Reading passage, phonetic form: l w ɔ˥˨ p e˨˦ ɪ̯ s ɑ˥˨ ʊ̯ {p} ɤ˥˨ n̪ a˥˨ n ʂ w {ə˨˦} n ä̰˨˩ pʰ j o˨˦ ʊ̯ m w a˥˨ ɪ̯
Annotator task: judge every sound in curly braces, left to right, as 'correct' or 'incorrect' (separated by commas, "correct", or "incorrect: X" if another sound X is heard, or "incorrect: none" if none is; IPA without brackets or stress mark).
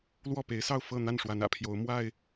incorrect: f, incorrect: a˨˦